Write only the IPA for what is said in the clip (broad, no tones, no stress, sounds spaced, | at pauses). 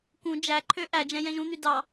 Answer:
k ũ d͡ʒ æ ǃʰ ø ʔ æ d͡ʒ ɛ̃ j ɛ̃ ʒ ũ n̪ y d ɑ